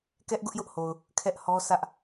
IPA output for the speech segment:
kɛ˦ʔɡʊ˦ʔjʊ˦ʔho˨ʊ̯ | kʰɛ˦ʔhɔ˦ sä˦ʔ

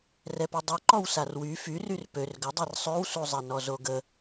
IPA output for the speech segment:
rɛpidˤu ǃɔwsarwy fyryr pør ɡədˤɛr sˤøwsuzˤɛnɔ zoɡə

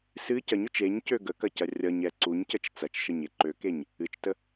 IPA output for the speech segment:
sɨ cɐɲøt͡ʃ eɲcø ɡəkɐcɐ rʲʌɲɛ ǀuɲcət͡ʃ t͡sɐt͡ʃʃəɲe ǃøkeɲ | ɨt͡ʃtə

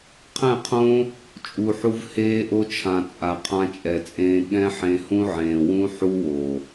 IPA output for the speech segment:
qʰɛ̃˦˨qʰõ˦ | t͡ʃʼu˨ħu˧v heː˦ʔo˦t͡ʃʰã˨t͡sʼa˨ qʰã˧t͡ʃʼɛ˨t͡sʼẽː˧ ɠɛ̃˦ ħẽ˧hũ˦ʕẽː˨ wũ˦ ħu˦wo˨

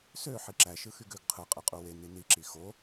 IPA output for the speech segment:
sø ħiǁæ ʃɯxyɡøɡ qʰɯ qʼɯqʼuwe nini ǁixo

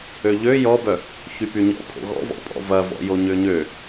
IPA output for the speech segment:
øʎø jɔbœ | çypyɲɔ̰ pʰo̰ɣɔ̰vɔ̰pʼɔ̰ vɐvɔ̰jo ɲøɲø

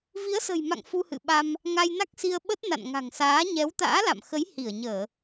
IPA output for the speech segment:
vi˨˦ə̯sə̤˨˩jma̰˧˨ŋ fu˧hɨ̰˧˨ɓa˧m | ŋa˧jna˦˥k̚si˧ə̯ɓə˦˥t̚ na̰˧˨nŋa̤˨˩ŋsaː˨˦ ɲɛ˨˦wt̪a̰ː˧˥la̰˧˨mxə˨˦j hi˧˩ə̯ɲəː˧˩˨

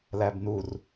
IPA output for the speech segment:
læbnur

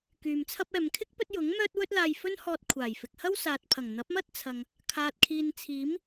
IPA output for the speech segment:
kyː˨mt͡sʰɐ˥p̚ ɛː˨mkʰɪ˥k̚ pɵ˥t̚ jʊ˨˥ŋmœː˥t̚ wɵ˥t̚laː˧jfɵ˥nhɔː˧t̚ kʷʰaː˨˩jfɪ˨k̚ hɐ˥wsaː˨t̚pʰɐ˨˩ŋ n̪ɐ˨˥p̚mɐ˥t̚ t͡sʰɐ˨ŋ | kʰaː˨t̚kʰiː˨nt͡sʰiː˨˥m

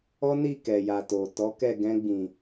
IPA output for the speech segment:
ɔ˦ni˦˨kɛ˨ja˨ to˨tɔ˨˦kɛ˦˨ ɡɛ̃˧ɡ͡bĩ˨

